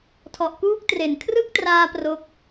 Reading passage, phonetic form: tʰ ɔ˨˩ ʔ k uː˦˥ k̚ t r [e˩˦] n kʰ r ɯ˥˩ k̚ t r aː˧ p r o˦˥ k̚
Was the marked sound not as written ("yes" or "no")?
yes